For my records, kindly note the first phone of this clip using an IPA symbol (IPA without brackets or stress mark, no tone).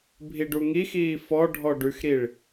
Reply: bʱ